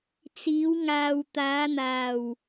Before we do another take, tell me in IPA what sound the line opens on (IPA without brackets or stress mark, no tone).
t͡s